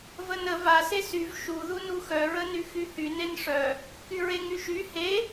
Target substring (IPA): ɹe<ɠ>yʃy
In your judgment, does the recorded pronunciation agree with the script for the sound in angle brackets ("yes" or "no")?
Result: no